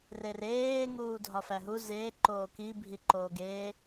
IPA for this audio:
r e r eː ŋ uː dʱ ɒ f æ ɦ u z eː ǃ oː k i bʱ i ǃ oː ɡ eː

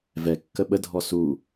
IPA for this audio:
v ɛ kː ə ɓ ə dʱ ɔ s u

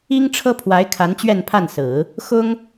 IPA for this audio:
i˥ ŋ ʈ͡ʂʰ ɤ˥ pʰ w a˧˥ ɪ̯ kʰ a˧˥ n t͡ɕ ɥ ɛ˥˧ n pʰ a˥˩ n s ɹ̩˨˩˦ | x ʊ˥ ŋ

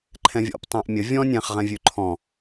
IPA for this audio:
ǃʰ ɛ̃ vʲ ɔ̰ p tˤ ɛ̃ ʔ mʲ ə vʲ ɔ̃ nʲ ɛ̃ χ ʁ ɛ̃ vʲ ʉ ǃʰ ɔ̃

